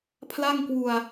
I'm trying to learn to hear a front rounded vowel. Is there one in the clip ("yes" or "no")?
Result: no